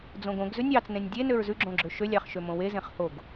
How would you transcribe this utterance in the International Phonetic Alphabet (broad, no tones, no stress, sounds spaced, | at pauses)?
d͡z õ ɡ õ ɡ z ʉ nʲ ɑ t͡s n ẽ nʲ dʲ e n ø ɹ z ʉ ɡ͡ǁ õ ɡ͡ǁ ø ʃ ø lʲ ɑ χ ʃ ø m õ w e z ẽ χ h o ɡ